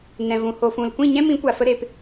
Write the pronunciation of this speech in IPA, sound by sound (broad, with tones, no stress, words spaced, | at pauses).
nɛ̃˨vũ˨ ho˨fũ˨lkʷĩ˦˨ ɲɛ̃˦mĩ˨˦kʷa˨fə˧ ɾe˨p